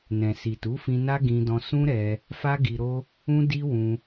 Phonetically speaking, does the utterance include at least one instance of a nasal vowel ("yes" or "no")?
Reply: yes